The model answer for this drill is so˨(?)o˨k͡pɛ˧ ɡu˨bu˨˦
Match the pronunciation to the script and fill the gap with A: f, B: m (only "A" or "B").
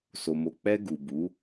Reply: B